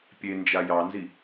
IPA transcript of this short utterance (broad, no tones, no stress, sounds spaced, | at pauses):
pʲ e n d͡ʒ a j ɑ n z i